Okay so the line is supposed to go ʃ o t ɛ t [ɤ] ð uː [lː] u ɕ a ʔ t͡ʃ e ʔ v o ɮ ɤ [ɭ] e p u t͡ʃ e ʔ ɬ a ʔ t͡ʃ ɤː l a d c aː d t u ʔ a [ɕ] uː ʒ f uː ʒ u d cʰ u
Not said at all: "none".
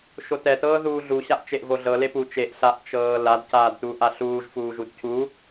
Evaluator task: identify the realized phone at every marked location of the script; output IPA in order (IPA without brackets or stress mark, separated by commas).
ɤː, ɮ, l, ɬ